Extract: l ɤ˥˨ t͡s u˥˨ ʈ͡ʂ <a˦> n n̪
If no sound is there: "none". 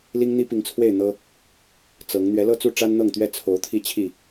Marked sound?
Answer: a˦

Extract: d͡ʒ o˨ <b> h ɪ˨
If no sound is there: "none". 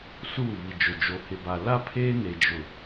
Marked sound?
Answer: none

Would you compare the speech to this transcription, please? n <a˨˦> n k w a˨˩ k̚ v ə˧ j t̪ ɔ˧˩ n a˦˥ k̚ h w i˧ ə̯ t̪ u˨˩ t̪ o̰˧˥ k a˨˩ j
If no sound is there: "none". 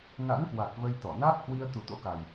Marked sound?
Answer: a̰˧˥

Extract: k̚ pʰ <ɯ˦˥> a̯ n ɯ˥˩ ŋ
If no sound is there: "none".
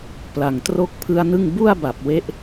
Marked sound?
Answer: ɯ˦˥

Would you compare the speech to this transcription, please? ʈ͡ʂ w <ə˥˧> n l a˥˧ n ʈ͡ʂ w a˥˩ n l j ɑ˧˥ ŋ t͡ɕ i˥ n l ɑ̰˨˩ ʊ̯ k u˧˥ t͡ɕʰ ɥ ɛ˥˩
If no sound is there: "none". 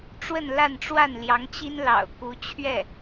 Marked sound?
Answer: ə˥˧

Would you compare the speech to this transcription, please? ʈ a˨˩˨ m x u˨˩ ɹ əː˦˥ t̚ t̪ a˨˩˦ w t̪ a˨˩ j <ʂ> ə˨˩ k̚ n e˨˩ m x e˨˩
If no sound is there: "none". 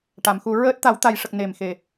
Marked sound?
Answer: ʂ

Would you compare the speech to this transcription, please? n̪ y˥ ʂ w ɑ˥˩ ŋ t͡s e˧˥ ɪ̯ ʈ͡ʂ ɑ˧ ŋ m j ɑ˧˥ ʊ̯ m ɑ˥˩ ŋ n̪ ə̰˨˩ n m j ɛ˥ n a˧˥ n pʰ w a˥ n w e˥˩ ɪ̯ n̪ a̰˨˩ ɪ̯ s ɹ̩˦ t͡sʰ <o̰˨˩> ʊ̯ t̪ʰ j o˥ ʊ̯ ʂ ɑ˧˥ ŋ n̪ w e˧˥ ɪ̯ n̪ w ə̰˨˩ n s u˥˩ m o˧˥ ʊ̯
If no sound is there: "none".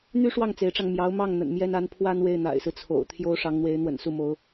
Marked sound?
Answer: o̰˨˩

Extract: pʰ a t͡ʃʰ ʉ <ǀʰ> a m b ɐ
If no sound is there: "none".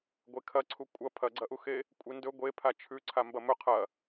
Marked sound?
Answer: ǀʰ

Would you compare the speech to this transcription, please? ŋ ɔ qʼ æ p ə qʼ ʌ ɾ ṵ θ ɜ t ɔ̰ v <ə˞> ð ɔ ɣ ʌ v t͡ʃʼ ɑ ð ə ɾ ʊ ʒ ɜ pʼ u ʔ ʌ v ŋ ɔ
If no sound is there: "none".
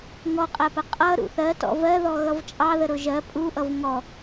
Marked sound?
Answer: ɜ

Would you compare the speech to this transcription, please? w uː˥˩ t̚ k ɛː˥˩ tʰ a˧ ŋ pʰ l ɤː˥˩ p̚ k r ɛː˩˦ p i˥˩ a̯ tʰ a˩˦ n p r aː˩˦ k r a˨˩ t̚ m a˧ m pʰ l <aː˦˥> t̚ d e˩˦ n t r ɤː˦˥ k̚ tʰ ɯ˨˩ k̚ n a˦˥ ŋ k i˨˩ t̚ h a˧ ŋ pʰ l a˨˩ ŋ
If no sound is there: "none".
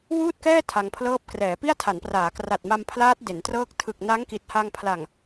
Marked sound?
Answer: aː˦˥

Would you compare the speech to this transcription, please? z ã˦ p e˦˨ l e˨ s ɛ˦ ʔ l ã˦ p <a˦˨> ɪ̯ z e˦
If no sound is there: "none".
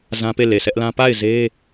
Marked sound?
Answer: a˦˨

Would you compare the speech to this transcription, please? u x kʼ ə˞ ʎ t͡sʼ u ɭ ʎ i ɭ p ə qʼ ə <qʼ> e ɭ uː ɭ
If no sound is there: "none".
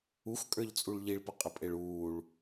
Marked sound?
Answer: pʼ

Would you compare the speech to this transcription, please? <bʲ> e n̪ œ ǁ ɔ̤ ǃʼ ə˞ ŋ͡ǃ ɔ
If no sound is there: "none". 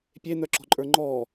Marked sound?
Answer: pʲ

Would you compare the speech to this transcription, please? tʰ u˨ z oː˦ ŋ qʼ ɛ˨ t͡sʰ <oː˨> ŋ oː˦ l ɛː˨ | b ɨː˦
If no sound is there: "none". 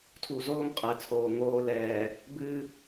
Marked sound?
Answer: oː˨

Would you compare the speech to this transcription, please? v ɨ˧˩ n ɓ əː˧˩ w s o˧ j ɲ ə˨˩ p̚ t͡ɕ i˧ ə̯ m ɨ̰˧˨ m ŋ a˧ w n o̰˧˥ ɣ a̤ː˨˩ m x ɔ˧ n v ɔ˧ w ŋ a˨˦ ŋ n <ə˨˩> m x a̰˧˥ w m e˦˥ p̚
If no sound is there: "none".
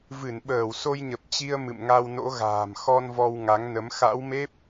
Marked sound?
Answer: ə˨˦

